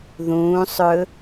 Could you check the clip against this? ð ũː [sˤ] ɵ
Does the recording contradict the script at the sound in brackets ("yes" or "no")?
no